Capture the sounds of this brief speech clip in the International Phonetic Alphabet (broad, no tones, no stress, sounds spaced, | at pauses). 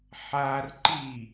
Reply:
ħ a r ǃ i